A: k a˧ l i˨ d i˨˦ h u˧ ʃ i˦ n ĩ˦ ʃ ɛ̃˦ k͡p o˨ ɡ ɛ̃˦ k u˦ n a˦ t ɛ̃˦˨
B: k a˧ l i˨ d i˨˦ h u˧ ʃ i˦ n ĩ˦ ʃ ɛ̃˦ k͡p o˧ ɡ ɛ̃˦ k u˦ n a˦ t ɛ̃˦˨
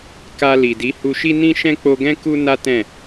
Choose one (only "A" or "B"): B